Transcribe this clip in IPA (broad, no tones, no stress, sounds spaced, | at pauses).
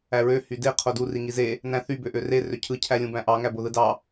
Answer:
æ ɹ ø h y d e qʰ o d u r i ŋ i z e | n æ̃ θ y b ø ʔ ø r e r ø cʰ ɯ cʰ æ lʲ ũ b æ̃ ʔ ɑ ŋ æ b o ð ɯ d ɑ